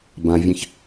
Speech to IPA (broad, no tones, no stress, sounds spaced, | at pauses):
b ã vʲ ɛ̃ ç